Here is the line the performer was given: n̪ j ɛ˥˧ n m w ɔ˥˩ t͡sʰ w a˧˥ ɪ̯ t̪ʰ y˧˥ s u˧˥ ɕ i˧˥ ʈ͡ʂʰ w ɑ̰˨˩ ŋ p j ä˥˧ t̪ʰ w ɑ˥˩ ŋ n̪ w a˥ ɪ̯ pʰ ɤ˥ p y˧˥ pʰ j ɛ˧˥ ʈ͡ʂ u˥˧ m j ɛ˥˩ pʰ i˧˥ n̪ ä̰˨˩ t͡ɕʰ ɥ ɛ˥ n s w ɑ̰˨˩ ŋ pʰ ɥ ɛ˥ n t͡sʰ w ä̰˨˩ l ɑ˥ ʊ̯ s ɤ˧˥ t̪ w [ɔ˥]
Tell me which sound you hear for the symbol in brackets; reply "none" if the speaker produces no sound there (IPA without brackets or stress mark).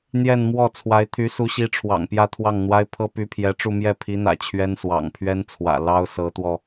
ɔ˧